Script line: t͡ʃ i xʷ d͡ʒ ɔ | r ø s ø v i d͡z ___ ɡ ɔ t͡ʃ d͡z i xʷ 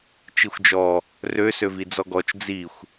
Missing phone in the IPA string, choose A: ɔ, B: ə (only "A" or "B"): A